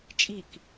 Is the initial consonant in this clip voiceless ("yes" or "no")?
yes